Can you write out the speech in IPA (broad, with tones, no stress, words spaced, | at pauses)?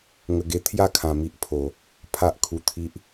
ŋə˧ɡe˧ t̪ʰja˦kʰã˨˩mi˨ʔpʰo˨˩ | pʰa˦ʔ kʰu˧t̪ʰi˦ʔ